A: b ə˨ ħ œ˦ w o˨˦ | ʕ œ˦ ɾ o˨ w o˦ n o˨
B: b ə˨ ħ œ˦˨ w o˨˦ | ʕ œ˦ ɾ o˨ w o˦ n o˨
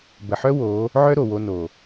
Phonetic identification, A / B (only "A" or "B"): A